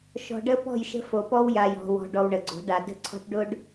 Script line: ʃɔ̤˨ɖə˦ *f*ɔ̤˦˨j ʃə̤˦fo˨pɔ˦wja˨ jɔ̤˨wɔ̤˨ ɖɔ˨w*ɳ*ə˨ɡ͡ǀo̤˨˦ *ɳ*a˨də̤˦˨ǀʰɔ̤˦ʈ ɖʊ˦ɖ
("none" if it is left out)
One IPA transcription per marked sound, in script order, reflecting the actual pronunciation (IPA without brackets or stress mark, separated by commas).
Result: p, ɳ, ɖ